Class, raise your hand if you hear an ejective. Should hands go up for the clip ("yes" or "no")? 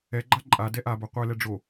yes